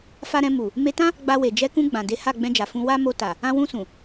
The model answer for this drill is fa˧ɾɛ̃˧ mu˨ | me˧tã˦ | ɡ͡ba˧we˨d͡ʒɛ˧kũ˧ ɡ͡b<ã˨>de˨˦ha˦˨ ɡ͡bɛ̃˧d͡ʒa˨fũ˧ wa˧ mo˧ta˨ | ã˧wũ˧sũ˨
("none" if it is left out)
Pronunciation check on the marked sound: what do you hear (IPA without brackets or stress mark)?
ã˨